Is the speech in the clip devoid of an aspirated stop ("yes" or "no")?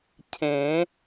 no